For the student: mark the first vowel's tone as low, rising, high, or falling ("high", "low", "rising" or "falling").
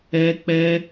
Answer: high